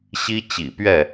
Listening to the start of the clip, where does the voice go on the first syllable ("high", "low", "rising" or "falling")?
high